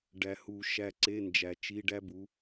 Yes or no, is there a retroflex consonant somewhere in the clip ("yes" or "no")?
yes